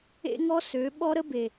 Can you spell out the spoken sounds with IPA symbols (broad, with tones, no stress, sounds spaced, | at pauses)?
ḛ˦ ŋ ɔ˦ s ø˨˦ ɓ ɔ˦ ɾ ə˦ b e˨